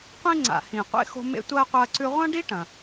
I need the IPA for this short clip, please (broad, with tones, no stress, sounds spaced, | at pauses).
qʷ ĩ˥ ŋ͡ǀ a̰˨ h ĩ˨ qʷ ḛ˥ x o̤˦ m ḛ˦ tʷ ɐː˥ qʷ ɐː˦ ǀ ʉ˦ ʁʷ ɐ̃˥ ɖ i˥ ʈ ɐ̃˩